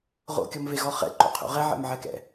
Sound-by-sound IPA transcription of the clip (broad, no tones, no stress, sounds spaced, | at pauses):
ʁ o̰ kʲ ɔ m v e ɣ ɔ χ ɛ̰ ǃ o̰ qʰ o̰ ʁ ɛ ʕ ɛ̰ m ʕ ɛ k ɛ̰